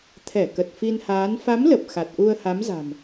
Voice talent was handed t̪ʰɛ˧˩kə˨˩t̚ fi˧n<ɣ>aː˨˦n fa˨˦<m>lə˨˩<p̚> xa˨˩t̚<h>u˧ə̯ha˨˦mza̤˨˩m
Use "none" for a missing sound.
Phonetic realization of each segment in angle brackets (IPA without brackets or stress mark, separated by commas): h, m, p̚, ʔ